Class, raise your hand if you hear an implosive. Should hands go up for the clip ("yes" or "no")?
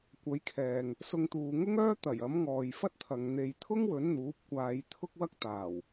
no